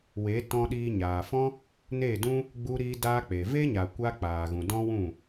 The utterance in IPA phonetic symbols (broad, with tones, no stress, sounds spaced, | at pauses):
w e˨˦ t ɔ̃˧ ɗ iː˧ ɲ aː˨ f ɔ̃˦ | n eː˦˨ d ũ˦ | ɡ͡b u˧ ɾ iː˧ d aː˧ k͡p e˨ v e˦ ɲ a˨ kʷ a˧ k͡p aː˨ ɣ ũ˨ d ɔ̃˦ w ũ˦˨